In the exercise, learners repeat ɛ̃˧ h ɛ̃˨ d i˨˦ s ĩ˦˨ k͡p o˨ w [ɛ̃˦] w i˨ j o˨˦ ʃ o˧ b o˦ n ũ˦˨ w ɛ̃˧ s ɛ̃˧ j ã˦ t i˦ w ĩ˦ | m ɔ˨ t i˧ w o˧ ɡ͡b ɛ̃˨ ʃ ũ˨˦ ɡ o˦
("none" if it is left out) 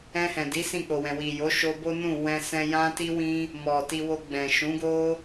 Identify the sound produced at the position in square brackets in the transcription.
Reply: ɛ̃˨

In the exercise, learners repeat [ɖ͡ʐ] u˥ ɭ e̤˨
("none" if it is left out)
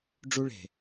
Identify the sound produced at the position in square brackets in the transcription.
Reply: ɖ͡ʐ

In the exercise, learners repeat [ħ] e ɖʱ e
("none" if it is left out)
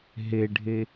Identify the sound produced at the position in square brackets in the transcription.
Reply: ɦ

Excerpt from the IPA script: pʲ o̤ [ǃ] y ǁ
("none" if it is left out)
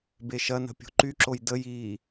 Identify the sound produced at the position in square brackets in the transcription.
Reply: ǃ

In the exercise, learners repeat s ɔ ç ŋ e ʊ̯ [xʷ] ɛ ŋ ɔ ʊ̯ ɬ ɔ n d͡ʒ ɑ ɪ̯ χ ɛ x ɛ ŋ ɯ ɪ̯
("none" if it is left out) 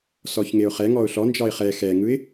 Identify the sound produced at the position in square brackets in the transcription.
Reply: χ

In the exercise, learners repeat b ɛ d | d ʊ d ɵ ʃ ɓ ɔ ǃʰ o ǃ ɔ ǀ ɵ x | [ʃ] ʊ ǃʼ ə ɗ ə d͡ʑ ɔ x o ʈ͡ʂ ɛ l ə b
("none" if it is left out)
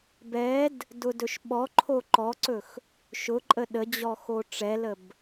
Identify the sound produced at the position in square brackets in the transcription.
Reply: ʃ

